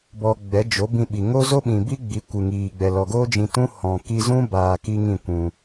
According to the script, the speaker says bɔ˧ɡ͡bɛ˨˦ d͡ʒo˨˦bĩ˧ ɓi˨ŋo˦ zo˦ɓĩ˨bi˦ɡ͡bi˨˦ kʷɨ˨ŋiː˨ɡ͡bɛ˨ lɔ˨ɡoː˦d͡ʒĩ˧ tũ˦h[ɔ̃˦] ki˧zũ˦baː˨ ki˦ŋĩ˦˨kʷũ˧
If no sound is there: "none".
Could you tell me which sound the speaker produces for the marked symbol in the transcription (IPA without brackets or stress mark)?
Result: ɔ̃˨